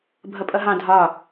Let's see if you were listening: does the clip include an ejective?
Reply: yes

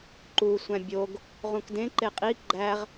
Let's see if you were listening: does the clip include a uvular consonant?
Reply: yes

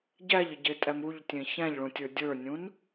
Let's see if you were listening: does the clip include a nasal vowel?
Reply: yes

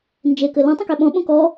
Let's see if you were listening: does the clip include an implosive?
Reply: yes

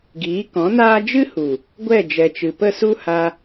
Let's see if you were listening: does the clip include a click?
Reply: no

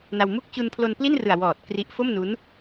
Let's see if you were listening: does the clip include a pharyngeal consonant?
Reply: no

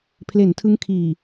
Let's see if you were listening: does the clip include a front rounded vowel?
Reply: no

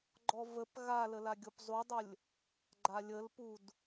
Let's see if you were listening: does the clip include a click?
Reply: yes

